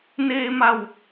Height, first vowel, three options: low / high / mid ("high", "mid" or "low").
mid